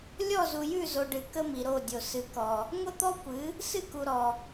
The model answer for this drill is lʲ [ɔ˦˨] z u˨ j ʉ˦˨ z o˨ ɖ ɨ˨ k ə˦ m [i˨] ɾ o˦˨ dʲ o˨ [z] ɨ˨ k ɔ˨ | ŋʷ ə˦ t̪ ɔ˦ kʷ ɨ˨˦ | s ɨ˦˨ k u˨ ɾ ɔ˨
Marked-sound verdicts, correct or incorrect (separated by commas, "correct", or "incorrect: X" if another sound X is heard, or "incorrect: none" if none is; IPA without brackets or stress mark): correct, correct, incorrect: s